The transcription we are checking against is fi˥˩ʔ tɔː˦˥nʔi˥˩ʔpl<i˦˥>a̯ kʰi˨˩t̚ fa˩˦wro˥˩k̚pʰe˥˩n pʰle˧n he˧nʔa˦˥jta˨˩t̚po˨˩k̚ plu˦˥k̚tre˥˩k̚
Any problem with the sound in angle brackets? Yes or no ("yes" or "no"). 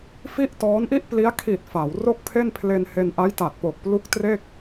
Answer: no